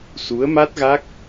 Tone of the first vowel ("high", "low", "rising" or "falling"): rising